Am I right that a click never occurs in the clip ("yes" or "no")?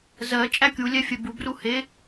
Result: yes